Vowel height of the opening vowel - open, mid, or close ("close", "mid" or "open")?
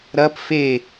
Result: open